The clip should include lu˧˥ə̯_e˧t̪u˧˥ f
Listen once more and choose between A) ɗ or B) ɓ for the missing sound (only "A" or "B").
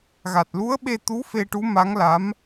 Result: B